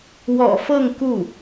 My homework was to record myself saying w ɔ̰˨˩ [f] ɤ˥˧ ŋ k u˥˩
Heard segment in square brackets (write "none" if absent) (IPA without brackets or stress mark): f